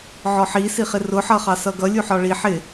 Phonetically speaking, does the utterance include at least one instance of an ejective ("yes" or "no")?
no